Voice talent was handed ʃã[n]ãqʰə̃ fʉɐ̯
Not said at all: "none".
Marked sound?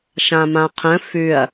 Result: m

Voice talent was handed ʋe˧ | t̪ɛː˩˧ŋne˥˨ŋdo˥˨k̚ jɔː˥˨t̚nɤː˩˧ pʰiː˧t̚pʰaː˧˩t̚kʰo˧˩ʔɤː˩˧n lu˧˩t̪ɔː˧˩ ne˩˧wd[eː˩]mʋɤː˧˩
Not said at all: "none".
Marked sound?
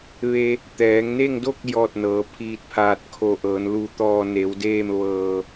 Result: eː˥˨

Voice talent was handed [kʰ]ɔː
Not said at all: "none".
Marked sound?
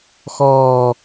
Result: x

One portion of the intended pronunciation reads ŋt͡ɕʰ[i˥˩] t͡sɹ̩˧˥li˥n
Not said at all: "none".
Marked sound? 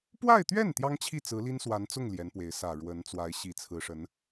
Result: i˥˩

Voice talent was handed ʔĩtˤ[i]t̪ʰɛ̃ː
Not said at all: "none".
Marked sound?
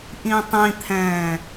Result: ĩ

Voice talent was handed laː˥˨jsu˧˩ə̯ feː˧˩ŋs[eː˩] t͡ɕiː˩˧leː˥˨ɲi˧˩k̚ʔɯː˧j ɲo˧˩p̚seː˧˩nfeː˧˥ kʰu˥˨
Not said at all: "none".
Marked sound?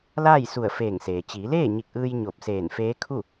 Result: eː˩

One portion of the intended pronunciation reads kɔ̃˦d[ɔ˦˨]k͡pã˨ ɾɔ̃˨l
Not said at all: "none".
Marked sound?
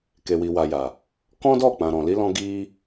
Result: ɔ˦˨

